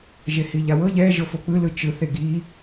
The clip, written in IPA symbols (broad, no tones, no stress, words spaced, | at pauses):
ʒehiʎawɤ ʎɛ ʒɤfok͡pɯ lɯt͡ʃɯ θeɡi